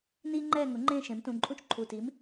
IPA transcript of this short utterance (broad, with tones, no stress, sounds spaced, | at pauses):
n iː˥ ŋ͡ǃ ɛː˥˧ ŋ ʊ˩˥ ŋ͡ǃ ẽː˥˧ ʃ ẽ˩˥ m t ũ˩˧˩ ǃʼ ũ˥ t͡ʃ ǃʰ u˩˧˩ t iː˩˥ m